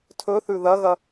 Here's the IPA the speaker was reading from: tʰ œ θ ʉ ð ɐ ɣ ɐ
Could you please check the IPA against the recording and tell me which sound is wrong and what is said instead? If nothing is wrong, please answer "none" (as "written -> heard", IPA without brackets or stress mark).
œ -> ɵ